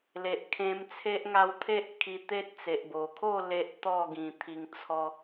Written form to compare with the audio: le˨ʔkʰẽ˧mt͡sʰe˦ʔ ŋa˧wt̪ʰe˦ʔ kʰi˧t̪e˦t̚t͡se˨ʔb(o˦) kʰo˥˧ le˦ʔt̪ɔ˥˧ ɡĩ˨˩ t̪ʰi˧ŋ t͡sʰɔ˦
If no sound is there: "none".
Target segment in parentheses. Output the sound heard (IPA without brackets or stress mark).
o˨˩